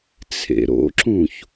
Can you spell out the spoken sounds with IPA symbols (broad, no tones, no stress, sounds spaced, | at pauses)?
t͡sʰ ḛ ɾ o̰ ǁ ũ ç